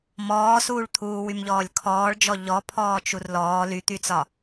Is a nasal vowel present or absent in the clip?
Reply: absent